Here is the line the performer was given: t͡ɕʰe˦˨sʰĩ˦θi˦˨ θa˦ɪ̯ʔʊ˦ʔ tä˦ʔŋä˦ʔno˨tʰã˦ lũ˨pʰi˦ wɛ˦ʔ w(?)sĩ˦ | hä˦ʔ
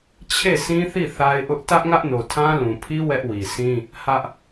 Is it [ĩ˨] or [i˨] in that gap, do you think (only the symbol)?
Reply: i˨